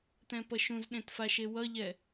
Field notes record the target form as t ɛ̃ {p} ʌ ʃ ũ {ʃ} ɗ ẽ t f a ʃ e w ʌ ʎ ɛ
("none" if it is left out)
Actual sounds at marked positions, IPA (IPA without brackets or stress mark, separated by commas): p, z